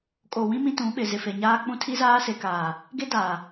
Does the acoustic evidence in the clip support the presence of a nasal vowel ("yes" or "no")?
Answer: yes